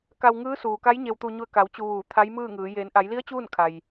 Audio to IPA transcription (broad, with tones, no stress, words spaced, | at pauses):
ka˧wŋɯː˧˥suː˩ka˧˥j ɲe˧wt̪u˧ɲu˧ə̯ ka˩˧w t͡ɕu˧ʋuː˧˩ t̪ʰa˧˥jmɯː˥˨ŋɯː˩˧ jeː˩˧nʔa˩˧jli˧˥ə̯ t͡ɕuː˥˨nkʰa˩j